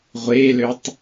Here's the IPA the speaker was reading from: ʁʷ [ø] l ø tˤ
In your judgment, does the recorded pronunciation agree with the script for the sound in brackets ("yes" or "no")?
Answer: no